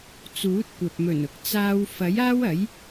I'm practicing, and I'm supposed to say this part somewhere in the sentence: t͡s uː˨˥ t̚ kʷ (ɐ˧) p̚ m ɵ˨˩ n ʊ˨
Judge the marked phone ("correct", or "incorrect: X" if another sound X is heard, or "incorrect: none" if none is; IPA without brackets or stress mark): incorrect: ɐ˨